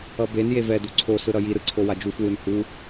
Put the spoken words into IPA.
ʌ b e n j e v ɛ d u ǀʰ o s ɯ ɾ ʌ j i ɾ ɯ ǀʰ o w a d͡ʒ u f w ɯ n h u

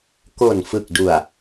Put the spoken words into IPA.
k o˨˩ n f ɯ˨˩ k̚ d u˨˩ a̯

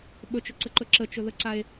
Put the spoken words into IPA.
ɓ ɵ t͡ʃ ɵ ǀ ə ǃ ɵ ǁ ə t͡ʃ ɵ ð ə ǀ a e̯

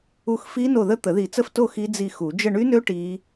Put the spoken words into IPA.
u˦˨ x f i˦˥ n o˦˨ ð ə˦˥ t̪ ə˨˩˦ ð i˨˩˦ t͡s ə˦˨ f t o˦˨ x i˦˥ d͡z i˦˨ x u˨˩˦ d͡ʒ ə˦˨ ɳ y˦˥ n ø˦˥ ʈ i˦˥

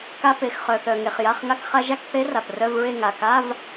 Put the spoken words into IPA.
k a˧ p e˩ x χ œ˩ θ œ˩ ŋ e˩ χ j a˩˧˩ χ ŋ a˧ k χ a˧ ʒ a˥˧ k θ e˦˥ r a˩ p r œ˧˥˧ v ɹ e˥˧ ŋ a˩ k a˧˥˧ v

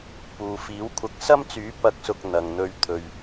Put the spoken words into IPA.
p uː˨ f iː˨˥ w kʷʰ ɐ˧ k̚ s ɐ˥ m t͡s yː˨˥ p ɐ˨˥ k̚ s ʊ˨ k̚ n̪ ɐ˨ ŋ n̪ ɵ˧ ɥ t̪ʰ ɵ˧ ɥ

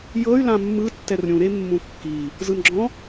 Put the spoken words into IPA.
j ɤ y̯ l ã mː ɯ tː ɛ r ɾʲ ũ ɾ e mː ũ kː i | z ɯ n ɡ͡ǁ ɔ̃

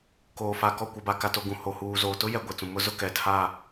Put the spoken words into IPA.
k oː˨ f a˨ k ɔ˦˨ kʷ a˨ b a˨ k a˨ t o˨ ɡ ũ˨ h o˨ h uː˨ z oː˨ t ʊ˦ j ɛ˨ ɡʷ ɛ˨ t͡s ũ˨ m ʊ˦ z ʊ˦ k ɛ˨ tʰ a˦˨

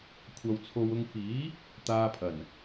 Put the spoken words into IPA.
kʷʰ ɐ˧ w t͡sʰ o˧ w ʊ˧ ŋ f iː˨˥ | t̪ aː˧ pʰ ɐ˨˩ n

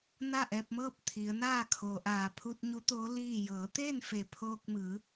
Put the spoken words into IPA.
n a˥˨ ʔ ɛː˧ p̚ m ɤː˥˨ p̚ t̪ʰ i˩˧ ə̯ n aː˥˨ kʰ oː˩ ʔ aː˧˩ pʰ u˧ t̚ ɲ u˧˥ t̪ oː˧˥ l iː˥˨ j ɤː˩˧ t̪ e˥˨ n f e˧˩ pʰ oː˧ k̚ m ɯː˩˧

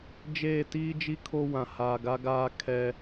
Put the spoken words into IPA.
d͡ʒ eː˦˨ t iː˦ d͡ʒ i˦ kʰ o˦ w ã˨ h aː˨ ɡ a˦ ɡ aː˦ kʰ ɛ˦

